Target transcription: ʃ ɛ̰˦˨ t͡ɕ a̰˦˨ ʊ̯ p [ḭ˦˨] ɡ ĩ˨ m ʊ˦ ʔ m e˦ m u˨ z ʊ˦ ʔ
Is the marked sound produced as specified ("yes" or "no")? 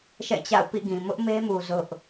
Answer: yes